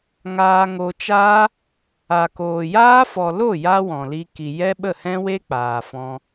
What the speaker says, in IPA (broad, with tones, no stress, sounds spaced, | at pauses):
ŋ aː˧ ŋ o˧ t͡ʃ aː˦ | a˨ k oː˨ j aː˦ f ɔ˨ l o˦˨ j a˧ w ɔ̃˨ l i˧ k i˨ j ɛ˦ ɓ ə˦˨ h ɛ̃˦ w e˦ k͡p aː˨ f ɔ̃˧